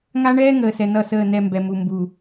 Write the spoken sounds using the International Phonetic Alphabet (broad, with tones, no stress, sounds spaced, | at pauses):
ŋ a˦ ɳ ɛː˦ ŋ əː˨ s ɛ˨ n ʌ˦˨ s əː˦˨ n ɛ˦˨ m b ɛ˨ m u˨ m b u˨